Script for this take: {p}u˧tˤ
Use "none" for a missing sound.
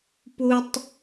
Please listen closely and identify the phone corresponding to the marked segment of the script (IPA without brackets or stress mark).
p